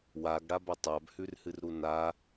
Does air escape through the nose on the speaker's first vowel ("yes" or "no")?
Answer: no